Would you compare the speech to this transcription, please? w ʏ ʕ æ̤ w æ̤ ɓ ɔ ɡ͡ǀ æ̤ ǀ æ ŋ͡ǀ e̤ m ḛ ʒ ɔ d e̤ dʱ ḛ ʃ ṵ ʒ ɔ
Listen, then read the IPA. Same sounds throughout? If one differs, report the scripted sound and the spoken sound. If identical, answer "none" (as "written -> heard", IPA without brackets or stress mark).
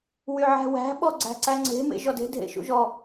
ʏ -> y